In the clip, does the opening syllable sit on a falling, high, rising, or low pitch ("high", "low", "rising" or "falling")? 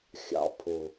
low